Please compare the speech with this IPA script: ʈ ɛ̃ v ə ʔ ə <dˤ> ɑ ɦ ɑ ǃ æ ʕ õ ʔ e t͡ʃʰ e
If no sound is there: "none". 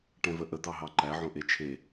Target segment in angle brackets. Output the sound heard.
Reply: d̪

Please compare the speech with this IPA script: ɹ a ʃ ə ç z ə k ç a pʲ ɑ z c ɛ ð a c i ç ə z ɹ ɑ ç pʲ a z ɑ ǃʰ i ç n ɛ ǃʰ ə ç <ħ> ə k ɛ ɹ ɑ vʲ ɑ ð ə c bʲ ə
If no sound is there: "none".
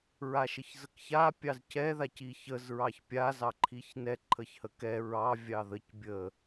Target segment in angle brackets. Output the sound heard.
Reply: h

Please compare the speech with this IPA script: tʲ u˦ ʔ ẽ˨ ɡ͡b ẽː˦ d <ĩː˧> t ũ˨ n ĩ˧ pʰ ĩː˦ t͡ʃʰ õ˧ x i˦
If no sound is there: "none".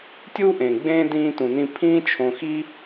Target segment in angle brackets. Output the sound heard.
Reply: ĩː˧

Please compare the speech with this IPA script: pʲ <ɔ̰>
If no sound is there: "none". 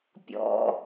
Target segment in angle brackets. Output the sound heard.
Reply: ɔ̰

